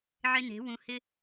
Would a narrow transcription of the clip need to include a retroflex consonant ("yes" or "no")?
no